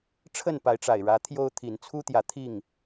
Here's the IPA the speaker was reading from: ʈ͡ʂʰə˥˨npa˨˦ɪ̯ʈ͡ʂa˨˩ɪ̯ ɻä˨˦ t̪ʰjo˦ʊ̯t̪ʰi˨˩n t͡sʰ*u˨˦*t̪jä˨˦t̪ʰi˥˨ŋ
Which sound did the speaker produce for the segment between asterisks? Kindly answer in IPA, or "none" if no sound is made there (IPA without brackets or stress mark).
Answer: u˦